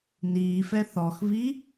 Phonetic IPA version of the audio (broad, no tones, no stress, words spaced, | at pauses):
niːfɛ θɔxvi